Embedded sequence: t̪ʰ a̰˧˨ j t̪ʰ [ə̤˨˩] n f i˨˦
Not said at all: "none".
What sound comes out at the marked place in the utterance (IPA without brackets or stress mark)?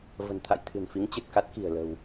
ɨ̤˨˩